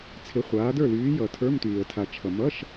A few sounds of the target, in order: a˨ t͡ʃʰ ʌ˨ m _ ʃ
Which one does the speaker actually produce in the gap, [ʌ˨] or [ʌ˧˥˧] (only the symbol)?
ʌ˧˥˧